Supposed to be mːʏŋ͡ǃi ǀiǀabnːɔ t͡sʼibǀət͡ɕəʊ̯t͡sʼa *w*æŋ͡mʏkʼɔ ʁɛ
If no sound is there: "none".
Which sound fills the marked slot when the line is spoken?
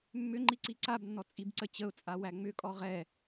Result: w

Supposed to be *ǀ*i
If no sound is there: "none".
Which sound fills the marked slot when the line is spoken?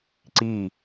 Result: ǀ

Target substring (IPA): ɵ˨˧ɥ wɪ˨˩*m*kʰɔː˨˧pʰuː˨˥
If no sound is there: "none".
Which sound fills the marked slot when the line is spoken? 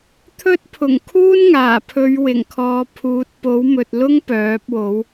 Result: ŋ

